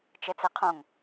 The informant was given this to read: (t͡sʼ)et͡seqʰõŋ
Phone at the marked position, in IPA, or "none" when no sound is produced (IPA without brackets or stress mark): t͡ʃ